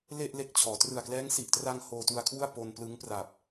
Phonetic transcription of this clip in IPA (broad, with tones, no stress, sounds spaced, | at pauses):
l e˥˩ ʔ l e˦˥ k̚ t͡ɕʰ ɔː˩˦ t r ɯ˨˩ a̯ k l ɛː˦˥ ŋ s i˨˩ ʔ t r a˧ ŋ h oː˧ t u˧ a̯ kʰ w u˥˩ a̯ p o˧ n p l ɯ˦˥ ŋ p r a˨˩ p̚